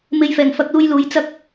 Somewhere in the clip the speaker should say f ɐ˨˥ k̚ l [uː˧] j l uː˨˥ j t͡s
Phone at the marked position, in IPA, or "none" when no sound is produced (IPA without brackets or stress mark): uː˧